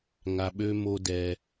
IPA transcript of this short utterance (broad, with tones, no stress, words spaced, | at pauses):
ŋa˧ɓø˦mo˦dɛ˧